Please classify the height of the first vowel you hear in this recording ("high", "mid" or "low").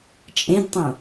mid